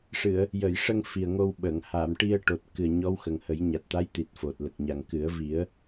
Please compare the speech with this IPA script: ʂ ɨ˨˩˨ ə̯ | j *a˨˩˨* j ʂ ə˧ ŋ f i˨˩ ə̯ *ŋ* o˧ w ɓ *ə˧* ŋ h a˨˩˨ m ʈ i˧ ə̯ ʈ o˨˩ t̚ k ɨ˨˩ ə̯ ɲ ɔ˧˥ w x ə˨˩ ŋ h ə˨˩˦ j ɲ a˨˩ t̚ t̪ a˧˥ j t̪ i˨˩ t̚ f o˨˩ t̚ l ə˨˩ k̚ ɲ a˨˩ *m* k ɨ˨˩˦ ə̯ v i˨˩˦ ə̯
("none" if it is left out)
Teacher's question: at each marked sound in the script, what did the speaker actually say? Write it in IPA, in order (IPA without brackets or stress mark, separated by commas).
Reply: ə˨˩˨, ŋ, ə˨˩˨, ŋ